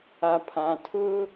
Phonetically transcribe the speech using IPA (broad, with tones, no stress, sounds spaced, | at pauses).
a˨ pʰ ã˨ tʰ ʊ˦